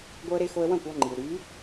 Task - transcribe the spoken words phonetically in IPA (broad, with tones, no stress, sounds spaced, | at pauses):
ɡʷ œ˦ ə̯ ɾ e˦ x o˦ ə̯ w ɐ̃˦˨ kʷ ɔ˦ ŋ͡ǃ i˨ w ɾ y˨˦